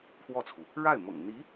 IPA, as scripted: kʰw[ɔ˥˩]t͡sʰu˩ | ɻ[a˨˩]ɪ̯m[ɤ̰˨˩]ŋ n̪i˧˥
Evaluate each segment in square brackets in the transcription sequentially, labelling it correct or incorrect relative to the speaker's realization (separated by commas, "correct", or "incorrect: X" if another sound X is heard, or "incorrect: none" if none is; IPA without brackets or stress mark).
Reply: correct, incorrect: a˥˩, correct